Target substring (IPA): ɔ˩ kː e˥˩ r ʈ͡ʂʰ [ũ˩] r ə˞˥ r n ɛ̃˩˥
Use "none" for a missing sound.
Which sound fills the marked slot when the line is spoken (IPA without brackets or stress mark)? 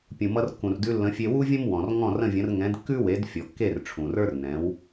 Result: ũ˩